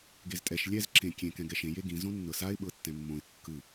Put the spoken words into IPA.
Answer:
ɡ e z tʼ ɛ ʃ lʲ ɛ z ǁ ẽ kʲ ẽ k ɛ̃ ɡ ɛ ʃ ẽ j e ɡ ĩ z õ nː ɤ s a ɪ̯ ɓ ɤ tː ɛ̃ mː õ ɪ̯ kː ɯ

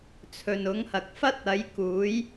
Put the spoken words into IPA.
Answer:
t͡sʰ ɵ˨ n ʊ˨˥ ŋ h ɐ˨ k̚ f ɐ˥ t̚ ɐ˨˥ j k uː˨˥ j

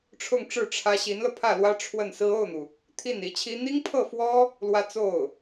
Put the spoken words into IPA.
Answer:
ʈ͡ʂʰ ʊ˥˧ ŋ ʈ͡ʂ ɻ̩˥˩ ʈ͡ʂʰ ä˥ ɕ i˧˥ n l ɤ˧ pʰ ä˥˩ l w ä˥ ʈ͡ʂʰ w ə˥˩ n s ɹ̩˥ o˥˩ ʊ̯ n̪ u˩ | t̪ʰ i˥˩ n i˧˥ t͡ɕʰ i˥ n̪ i˥ ŋ pʰ ɤ˥˩ f w ɔ˥ | l w ä˥ t͡s o˥˩ ʊ̯

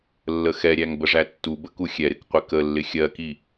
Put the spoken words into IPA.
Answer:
lː ə x ɛ ɾʲ æ ŋ b ə ʐ æ tː u b ə k u xʲ ɛ ɾ ɪ k qʷ ɪ k ə lː ɪ xʲ ɜ k i

